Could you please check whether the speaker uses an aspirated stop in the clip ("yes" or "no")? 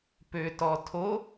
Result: yes